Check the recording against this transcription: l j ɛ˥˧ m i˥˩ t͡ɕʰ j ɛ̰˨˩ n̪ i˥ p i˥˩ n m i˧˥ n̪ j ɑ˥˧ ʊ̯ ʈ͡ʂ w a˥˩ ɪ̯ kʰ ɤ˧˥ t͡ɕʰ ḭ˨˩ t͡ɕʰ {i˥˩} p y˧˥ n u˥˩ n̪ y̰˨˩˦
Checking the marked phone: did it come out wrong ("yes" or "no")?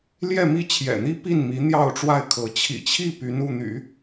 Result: no